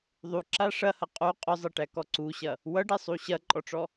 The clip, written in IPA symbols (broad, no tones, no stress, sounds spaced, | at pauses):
ðˤ u ǁ a ʂ ɐ h ɐ qʼ u qʼ ʊ zˤ ɐ ʈ æ k ɔ ǀ u ɕ ɐ | w ʌ ɖ ɛ sˤ u ɕ ɐ ǃʼ ɔ ʈ͡ʂ ɔ